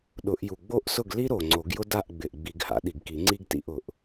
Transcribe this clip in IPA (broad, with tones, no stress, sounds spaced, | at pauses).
ɗ ʊ˨˩˦ ʔ j u˨˩ ɡ͡b o˥˩ ʔ s ʊ˥˩ ɡ l i˥ ɾ o˨˩ ŋ͡ǀ o˨˩˦ ɡ j ʊ˥ d a˥˩ ʔ ɡ͡b ɪ˨˩ ʔ ɡ͡b i˨˩˦ ɡ h a̰˨˩˦ ɗ i˨˩ ɡ k i˨˩˦ ŋ͡ǀ i˥ ɡ t ḭ˥˩ ʔ ʊ˨˩ ʔ